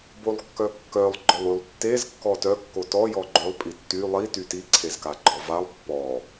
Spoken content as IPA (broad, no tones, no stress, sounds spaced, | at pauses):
b o lˠ kː œ kː œ lˠ ɡ͡ǃ ɔ lˠ y lˠ tː e z kː ɔ t œ kː o t ɔ j ɔ ɡ͡ǃ ø lˠ pʼ i tː y lˠ i t y t i ǀʰ e z k a ɡ͡ǃ ɔ v a lˠ pː ɔ